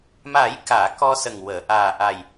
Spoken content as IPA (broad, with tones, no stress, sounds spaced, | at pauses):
m a˨˩˦ j k aː˨˩˨ k ɔ˧ s ə˨˩ ŋ w əː˨˩˨ ʔ aː˨˩ ʔ a˨˩ j